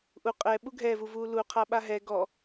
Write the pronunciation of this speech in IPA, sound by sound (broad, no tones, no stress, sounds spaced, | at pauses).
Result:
ʔ u qʼ ɛ ɓ u ɡʱ ɛ v u v uː l u qʰ a ɓ a ɦ ɛ ɡ ɔ